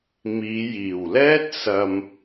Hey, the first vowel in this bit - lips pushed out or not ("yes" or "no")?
no